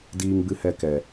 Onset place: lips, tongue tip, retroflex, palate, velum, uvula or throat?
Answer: tongue tip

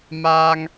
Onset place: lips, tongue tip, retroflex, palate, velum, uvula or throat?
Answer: lips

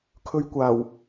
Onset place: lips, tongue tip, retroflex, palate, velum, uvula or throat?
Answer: velum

